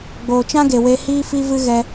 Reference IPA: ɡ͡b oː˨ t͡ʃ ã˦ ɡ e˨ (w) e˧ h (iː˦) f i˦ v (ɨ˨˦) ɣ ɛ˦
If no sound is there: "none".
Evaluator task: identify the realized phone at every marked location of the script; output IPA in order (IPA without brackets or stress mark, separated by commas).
w, iː˦, ɨ˦